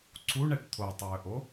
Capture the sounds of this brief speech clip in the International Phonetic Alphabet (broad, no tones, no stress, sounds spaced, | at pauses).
ǀʰ u ɳ ɛ ʈ t̪ʰ o tˤ ɵː ʔ o